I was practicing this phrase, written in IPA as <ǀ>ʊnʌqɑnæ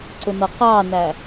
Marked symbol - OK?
yes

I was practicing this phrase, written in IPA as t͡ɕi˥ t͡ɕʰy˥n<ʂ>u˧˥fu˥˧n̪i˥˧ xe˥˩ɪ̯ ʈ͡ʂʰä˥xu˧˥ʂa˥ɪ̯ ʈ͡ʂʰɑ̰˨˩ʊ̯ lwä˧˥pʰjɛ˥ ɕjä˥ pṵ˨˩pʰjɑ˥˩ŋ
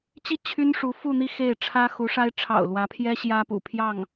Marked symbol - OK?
yes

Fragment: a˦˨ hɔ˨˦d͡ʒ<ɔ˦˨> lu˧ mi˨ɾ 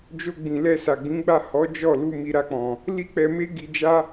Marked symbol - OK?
yes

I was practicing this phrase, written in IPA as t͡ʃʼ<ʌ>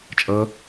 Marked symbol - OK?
yes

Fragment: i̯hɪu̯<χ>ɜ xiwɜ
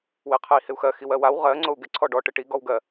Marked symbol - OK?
no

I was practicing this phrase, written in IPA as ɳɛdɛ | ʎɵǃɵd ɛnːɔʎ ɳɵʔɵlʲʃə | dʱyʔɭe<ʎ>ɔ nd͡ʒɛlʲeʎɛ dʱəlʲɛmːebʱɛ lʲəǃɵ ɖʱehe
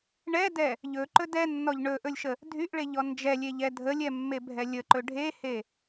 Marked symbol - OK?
yes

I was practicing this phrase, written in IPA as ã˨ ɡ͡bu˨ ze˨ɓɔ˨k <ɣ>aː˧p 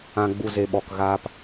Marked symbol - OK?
yes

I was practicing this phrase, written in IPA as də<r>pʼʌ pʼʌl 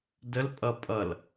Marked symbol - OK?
no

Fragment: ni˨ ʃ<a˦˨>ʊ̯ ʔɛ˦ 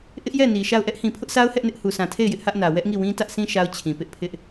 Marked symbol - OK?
yes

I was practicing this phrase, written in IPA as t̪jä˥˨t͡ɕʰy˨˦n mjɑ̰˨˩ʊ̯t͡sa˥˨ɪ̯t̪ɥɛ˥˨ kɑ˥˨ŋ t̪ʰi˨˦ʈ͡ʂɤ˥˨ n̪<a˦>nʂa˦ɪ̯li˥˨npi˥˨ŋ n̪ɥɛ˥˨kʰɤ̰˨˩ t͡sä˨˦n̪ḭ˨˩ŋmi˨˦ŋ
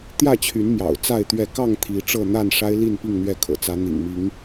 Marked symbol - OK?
no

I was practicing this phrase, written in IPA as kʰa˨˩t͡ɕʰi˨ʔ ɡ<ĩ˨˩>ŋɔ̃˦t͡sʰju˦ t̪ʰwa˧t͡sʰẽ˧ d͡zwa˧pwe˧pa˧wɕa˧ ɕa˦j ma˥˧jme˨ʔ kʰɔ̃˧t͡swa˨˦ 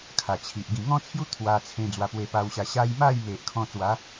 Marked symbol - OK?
yes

